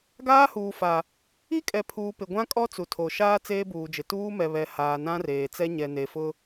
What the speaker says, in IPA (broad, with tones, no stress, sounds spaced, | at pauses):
ɡ aː˦ h uː˨ f a˨ | i˦ kʼ ɛ˨ pʰ uː˨ p ɪ˨ ɡʷ ã˦ kʼ ɔ˦ t͡s u˨ tʰ o˨ ʃ aː˦ t͡s eː˦ b uː˨ d͡ʒ ɪ˨ t uː˦ m ɛ˨ β ɛ˨ h aː˨ n ã˦ r eː˨ t͡s ɛ˦ ɲ ɛ˨ n e˨ f ʊ˦